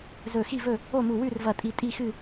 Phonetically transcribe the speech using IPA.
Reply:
z ɵ˧˩ x i˥˨ v ɵ˥˨ | o˥˨ m u˧˩ w ʉ˥˨ r v ɐ˧˩ tʼ i˧˩ tʼ i˥˨ x ɨ˥˨

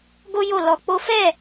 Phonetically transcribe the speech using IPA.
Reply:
ɡ o˦ j o˦˨ l ɔ˧ k͡p o˦ f ɛ˦˨

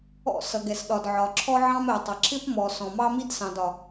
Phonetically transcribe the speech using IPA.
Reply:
ɔ̰˦˨ s ʌ˨ ɡ ɛ˨ s ɗ ɒ˨ d ʕ ɒ˨ ǁʰ ɔ˦ ʕ ɑ̃˦ m ɛ˨ tˤ ʌ˨ ǁ ɪ˦ p m ɔ˨ s ɔ̃˨ m ɑ˦ m i˦ d s ɑ̃˨ d ɒ˨

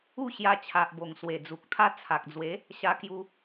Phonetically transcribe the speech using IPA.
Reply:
u˥˧ ɕ j a˧ t͡ɕʰ a˨ ʔ b o˨˩ ŋ s w e˨˩ d͡z u˨ k̚ t̪ʰ a˦ t͡sʰ a˨ k̚ d͡z w e˨˦ | ɕ a˧ k j u˧

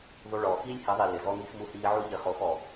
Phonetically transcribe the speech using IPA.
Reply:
ðˤ u˧ ɭ ɔː˨ x iː˦ lʲ h ɪ˨˦ ðˤ i˨ l ɪ˨ z ɔ˦ ŋ i˦ x m u˦ h iː˦ ʕ u˦ ʎ ɪ˧ χ o˨˦ x ɔ˨

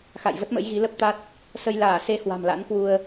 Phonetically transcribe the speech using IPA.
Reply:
x a̰˧˨ j v ə˦˥ t̚ m ə̰˧˥ j ɣ i˨˦ l ə˦˥ p̚ t̪ a˦˥ t̚ | s ə˧ j l aː˧˩ s e˨˦ h w a̤˨˩ m l a̰˧˥ n k w u˧ ə̯

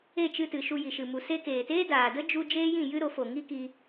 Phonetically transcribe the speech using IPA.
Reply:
e˦˨ t͡ʃ ɨ˧ t ɨ˨ ʃ u˧ j i˨ ʃ ɨ˨ m u˨ s e˧ k eː˨ t eː˦ d aː˨ d ə˦ d͡ʒ u˧ d͡ʒ eː˦ j ĩ˦˨ j ɨ˦ ɾ o˨˦ f o˨ ŋ i˦ k i˧

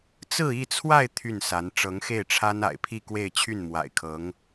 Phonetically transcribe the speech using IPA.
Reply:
t͡s ɹ̩˥˧ i˥˧ t͡sʰ w a˥˧ ɪ̯ t̪ʰ y˥˩ n s a˧˥ n ʈ͡ʂ ɤ˧˥ ŋ x e˥˩ ɪ̯ ʈ͡ʂʰ a˥ n a̰˨˩ ɪ̯ pʰ i˥˧ k w e˥˧ ɪ̯ t͡ɕʰ y˥˩ n m w a̰˨˩ ɪ̯ kʰ ɤ˧˥ ŋ

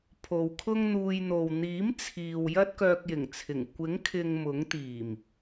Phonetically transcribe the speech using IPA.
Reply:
pʰ o˨ w kʰ ʊ˥ ŋ n̪ uː˧ j n̪ o˨ w n̪ iː˨˥ m t͡sʰ iː˨ w j ɐ˥ t̚ k œː˧ k̚ j ɪ˨˩ ŋ t͡sʰ ɪ˨˩ ŋ kʷ ɪ˨˥ ŋ kʰ ɪ˨ ŋ m ʊ˨˥ ŋ t̪ iː˨˩ m

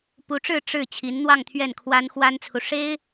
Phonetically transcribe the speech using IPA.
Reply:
p u˧˥ ʈ͡ʂ ɻ̩˥˧ ʈ͡ʂ ɻ̩˥˩ t͡ɕʰ i˧˥ n n̪ w ɑ˥˧ ŋ t̪ʰ ɥ ɛ˥˩ n kʰ w a˥ n x w a˥ n t͡sʰ u˨ ʂ e˥ ɪ̯

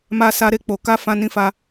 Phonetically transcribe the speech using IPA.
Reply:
m a˦ s a˦ ɾ e˦˨ k͡p o˨ k a˧ f ã˦ n ĩ˦ f a˧

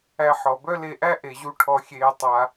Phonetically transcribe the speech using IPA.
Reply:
æ˧ ħ ɔ˨ b œ˦ l e˧ ʔ æ˦ ʔ e˨ ʑ u˧ ʈʰ ɔ˧ xʲ eː˧ tˤ a˦

